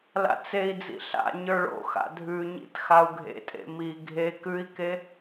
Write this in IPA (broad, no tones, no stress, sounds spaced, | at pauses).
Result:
l a̰ t͡s e i̯ d͡z ḭ ɬ a̰ ɲ ə˞ ɭ o̰ x a̰ dʱ ʉ ɲ ḭ t x a u̯ ɡʱ ḛ tʼ ḛ m i ɡʱ e k ʉ i̯ k e